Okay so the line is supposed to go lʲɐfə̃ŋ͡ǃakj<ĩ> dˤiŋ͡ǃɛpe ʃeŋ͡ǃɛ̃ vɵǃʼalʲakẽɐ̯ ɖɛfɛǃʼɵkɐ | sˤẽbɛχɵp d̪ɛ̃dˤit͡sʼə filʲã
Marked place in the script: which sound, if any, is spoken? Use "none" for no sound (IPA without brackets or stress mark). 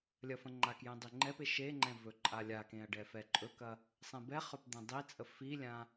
ẽ